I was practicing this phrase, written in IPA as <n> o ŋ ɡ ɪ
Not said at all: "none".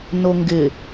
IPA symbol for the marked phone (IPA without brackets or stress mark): n